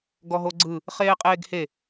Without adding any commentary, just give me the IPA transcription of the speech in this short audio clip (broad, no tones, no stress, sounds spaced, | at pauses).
ɡ ɔ ɦ o ɡ͡ǀ ɯ | χ eː qʼ eː ɡ h e